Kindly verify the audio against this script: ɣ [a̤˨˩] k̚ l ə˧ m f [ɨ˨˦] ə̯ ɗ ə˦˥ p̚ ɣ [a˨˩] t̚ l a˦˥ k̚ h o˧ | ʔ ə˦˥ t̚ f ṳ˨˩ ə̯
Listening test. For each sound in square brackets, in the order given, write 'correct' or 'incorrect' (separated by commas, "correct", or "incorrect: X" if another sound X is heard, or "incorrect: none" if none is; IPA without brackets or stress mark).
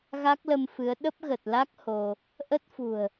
incorrect: a˦˥, correct, incorrect: ə˨˩